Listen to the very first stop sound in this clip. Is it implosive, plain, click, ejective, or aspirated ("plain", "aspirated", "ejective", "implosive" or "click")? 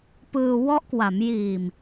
plain